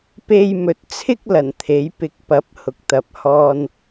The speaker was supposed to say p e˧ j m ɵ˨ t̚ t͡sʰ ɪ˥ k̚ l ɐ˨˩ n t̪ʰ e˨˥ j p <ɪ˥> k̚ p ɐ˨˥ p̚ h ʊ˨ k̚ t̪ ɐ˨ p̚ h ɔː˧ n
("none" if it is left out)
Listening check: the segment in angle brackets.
ɪ˧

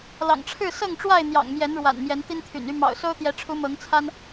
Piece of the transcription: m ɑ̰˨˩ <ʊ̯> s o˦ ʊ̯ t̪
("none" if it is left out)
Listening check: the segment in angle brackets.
ʊ̯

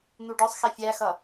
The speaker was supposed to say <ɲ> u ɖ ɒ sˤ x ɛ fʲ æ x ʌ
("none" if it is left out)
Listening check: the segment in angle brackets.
n̪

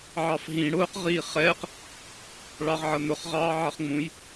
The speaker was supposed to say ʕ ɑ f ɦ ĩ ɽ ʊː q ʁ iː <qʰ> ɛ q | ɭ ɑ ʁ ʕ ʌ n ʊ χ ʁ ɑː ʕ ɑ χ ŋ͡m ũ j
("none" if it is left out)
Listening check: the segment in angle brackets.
χ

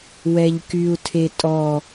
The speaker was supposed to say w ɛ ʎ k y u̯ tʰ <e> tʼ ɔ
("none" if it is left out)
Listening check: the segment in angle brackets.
e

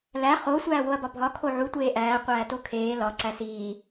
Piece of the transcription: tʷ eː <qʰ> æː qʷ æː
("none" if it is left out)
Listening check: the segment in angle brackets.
ʔ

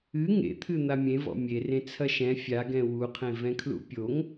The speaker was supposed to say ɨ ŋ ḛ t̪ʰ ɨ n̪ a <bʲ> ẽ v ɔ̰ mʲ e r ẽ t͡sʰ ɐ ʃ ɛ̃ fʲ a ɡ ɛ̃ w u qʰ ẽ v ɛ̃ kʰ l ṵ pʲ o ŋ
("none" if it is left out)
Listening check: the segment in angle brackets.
mʲ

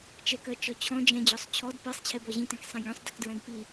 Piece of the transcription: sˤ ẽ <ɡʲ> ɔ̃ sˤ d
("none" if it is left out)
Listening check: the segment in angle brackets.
ɡʲ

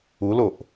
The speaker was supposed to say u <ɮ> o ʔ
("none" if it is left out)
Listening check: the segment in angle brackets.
l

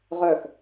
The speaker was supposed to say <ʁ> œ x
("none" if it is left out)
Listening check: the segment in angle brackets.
ʁ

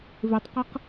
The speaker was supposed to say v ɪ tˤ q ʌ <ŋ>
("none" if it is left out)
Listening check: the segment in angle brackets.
q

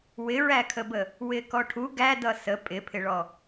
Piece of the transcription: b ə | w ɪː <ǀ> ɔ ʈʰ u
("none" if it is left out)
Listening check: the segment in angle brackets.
k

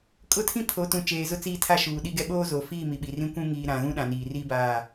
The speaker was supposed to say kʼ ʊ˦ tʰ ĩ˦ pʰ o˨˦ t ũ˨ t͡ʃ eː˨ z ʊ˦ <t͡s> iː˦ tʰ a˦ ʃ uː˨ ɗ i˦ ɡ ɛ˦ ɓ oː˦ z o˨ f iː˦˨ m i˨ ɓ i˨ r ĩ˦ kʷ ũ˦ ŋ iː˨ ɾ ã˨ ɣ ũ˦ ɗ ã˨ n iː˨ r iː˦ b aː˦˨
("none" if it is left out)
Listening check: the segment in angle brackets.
t͡s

